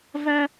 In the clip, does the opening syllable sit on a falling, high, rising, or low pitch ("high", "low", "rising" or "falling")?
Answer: high